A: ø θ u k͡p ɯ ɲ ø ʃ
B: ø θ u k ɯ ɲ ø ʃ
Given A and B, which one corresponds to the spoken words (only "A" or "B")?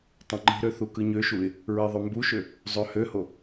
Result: B